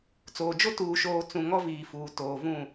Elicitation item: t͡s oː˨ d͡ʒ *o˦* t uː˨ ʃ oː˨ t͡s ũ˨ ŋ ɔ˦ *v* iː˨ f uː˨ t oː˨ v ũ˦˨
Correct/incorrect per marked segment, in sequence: correct, correct

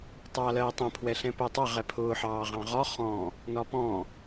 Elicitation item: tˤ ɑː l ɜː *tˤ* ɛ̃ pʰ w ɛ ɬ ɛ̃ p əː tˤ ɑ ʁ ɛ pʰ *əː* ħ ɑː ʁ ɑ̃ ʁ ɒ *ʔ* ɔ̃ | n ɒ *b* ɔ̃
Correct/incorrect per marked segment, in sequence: correct, incorrect, incorrect, incorrect

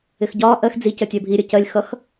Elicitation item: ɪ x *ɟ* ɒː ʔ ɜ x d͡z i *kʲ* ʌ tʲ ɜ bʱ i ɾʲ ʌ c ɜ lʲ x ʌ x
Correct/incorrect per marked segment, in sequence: correct, incorrect

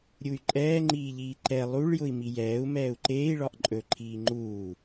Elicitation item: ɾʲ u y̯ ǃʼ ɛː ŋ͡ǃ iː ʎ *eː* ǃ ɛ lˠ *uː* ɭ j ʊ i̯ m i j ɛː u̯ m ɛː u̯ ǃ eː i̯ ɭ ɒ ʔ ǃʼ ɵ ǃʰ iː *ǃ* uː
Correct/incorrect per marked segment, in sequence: incorrect, incorrect, incorrect

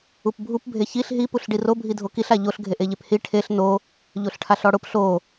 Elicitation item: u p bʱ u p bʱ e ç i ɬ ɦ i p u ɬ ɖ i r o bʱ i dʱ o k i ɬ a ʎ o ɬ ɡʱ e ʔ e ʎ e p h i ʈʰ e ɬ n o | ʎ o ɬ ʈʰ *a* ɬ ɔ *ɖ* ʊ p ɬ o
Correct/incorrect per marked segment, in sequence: correct, incorrect

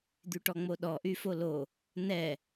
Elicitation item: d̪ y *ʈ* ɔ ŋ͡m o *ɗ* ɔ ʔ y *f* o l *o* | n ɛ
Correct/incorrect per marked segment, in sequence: correct, correct, correct, correct

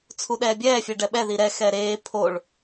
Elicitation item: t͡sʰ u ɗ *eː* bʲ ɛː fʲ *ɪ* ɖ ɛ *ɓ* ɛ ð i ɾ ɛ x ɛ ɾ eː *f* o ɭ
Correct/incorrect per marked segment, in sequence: incorrect, incorrect, correct, incorrect

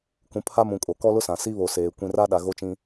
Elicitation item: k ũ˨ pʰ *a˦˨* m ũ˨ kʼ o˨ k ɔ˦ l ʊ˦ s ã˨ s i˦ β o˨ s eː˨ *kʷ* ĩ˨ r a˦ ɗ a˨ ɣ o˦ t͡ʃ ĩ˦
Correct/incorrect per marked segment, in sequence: incorrect, correct

